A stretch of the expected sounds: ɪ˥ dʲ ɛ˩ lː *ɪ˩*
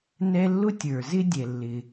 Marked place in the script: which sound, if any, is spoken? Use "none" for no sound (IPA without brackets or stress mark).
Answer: ɪ˩